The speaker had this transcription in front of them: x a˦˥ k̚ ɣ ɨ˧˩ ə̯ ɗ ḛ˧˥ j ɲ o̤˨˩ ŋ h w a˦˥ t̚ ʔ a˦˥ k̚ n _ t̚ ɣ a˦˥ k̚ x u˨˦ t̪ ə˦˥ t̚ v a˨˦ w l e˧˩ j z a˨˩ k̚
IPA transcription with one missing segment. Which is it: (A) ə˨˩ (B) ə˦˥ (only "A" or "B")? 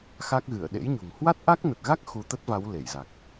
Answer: A